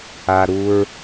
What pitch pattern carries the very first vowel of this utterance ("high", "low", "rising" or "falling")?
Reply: low